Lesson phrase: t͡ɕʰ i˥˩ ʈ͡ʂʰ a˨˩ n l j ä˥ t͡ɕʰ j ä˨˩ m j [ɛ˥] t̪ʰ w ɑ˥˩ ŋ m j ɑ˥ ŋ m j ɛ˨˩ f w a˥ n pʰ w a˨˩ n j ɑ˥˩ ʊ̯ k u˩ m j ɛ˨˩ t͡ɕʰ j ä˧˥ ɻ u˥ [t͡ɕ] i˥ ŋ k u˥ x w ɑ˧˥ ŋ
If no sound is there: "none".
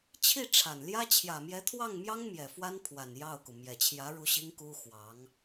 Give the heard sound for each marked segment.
ɛ˧˥, ɕ

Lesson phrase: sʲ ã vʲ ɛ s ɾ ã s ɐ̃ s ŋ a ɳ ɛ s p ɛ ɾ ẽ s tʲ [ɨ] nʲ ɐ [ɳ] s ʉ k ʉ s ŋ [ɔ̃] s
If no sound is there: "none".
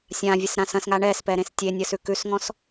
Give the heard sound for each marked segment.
e, none, ɔ̃

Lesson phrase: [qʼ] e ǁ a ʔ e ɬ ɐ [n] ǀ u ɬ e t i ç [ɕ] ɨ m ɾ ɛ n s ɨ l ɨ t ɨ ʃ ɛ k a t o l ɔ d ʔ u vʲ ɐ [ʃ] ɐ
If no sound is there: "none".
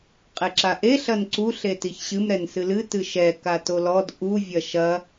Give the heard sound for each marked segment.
qʼ, n, ɕ, ʃ

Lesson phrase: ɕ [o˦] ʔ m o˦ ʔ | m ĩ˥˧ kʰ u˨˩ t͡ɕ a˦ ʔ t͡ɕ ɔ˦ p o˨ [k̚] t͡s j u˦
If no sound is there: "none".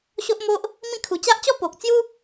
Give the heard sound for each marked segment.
o˦, k̚

